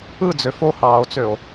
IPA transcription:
ɯ d͡z ø f o h ɑː o̯ t͡s ø o̯

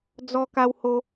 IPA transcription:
d͡z ɔ˦ k a˦ w h o˧

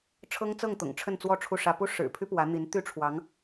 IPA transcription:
ʈ͡ʂʰ ɤ˥ ŋ t͡s ɤ˥˩ ŋ t̪ ʊ̰˨˩ ŋ ʈ͡ʂʰ ə˥˧ n t͡s w ɔ˥˧ ʈ͡ʂʰ u˥˩ ʂ ä˥ p u˥ ʂ ɻ̩˨˩ pʰ y˥ p w ä˧˥ n̪ i˧˥ n t̪ y˥ ʈ͡ʂʰ w ɑ˧˥ ŋ

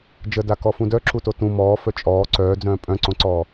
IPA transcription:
d͡ʒ ə d a k ɔ f ũ d œ ǁ u t o t ũ m ɔː f œ t͡ʃʼ ɔː ǀ œː d͡z œ̃ː pʼ œ̃ ǀ õ ǀ ɔː

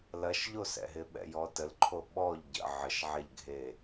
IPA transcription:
l ɐ ʃ ʎ o s ɛ̰ ɦ ɪ ɓ ɛ̰ j ɔ t ə l ǃʰ o ɓ ɔ ʎ ɟ ə̰ ʕ ə ʃ ʕ ɛ ʎ ɡʱ e

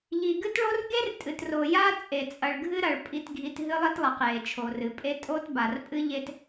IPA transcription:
ʎ i˨ ɡ ɨ˦ t ɭ o˦ r ɡ e˦ r tʼ ɨ˨ t r o˨ j a˦ t͡sʼ e˨ t͡sʼ ɐ˨ ɭ ɡʱ ɨ˦ ɾ ɐ˨ ɭ pʼ i˦ t ɡʱ i˦ t ɦ ɨ˦ lˠ i˦ t lˠ ɐ˨ q j e˨ t͡ʃʰ o˨ r ɨ˨ pʼ e˦ tʼ o˦ t b a˨ r pʼ ɨ˦ ʎ e˦ t

